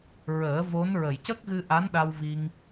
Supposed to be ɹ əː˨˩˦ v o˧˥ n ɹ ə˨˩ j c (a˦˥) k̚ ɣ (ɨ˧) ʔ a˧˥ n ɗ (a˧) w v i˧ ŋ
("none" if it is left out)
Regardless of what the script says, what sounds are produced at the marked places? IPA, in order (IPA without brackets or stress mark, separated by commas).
ə˦˥, ɨ˧, a˧